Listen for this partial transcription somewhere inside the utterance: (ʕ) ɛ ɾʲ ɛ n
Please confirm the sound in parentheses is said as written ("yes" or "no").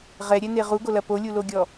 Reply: no